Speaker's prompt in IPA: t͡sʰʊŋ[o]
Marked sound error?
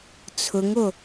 no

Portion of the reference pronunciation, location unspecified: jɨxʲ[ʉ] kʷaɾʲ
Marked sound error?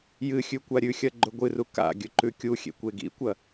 no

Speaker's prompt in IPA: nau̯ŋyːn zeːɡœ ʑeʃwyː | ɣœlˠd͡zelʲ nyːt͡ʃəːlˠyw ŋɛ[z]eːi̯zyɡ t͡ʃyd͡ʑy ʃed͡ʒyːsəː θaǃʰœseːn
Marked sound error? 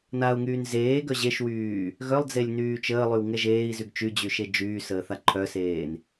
yes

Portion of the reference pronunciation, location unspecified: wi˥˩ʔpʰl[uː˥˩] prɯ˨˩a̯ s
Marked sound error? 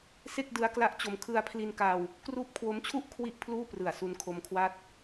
no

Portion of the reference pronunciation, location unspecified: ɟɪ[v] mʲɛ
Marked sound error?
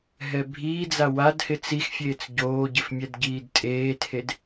yes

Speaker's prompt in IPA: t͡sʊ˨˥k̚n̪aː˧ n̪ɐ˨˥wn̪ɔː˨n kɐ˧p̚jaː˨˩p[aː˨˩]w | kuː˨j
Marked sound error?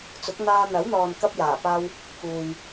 yes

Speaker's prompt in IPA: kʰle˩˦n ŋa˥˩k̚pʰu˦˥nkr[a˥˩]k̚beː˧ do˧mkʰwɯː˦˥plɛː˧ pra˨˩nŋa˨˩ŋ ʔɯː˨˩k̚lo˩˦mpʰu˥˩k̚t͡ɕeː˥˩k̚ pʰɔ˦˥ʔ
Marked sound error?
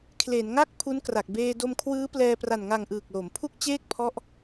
yes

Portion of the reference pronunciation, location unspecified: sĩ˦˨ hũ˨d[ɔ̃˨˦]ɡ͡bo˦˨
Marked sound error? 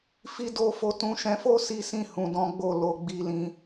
no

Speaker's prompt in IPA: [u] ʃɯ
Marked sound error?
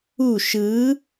no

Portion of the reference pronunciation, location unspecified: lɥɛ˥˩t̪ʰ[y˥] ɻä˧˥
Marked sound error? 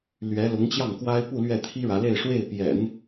yes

